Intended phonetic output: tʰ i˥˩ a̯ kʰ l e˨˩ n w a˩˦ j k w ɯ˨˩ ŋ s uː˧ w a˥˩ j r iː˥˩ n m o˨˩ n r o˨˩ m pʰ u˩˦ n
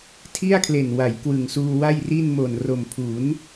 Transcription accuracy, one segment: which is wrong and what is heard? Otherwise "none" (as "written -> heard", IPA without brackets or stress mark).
iː˥˩ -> i˥˩